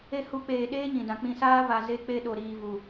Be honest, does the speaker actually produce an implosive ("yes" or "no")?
yes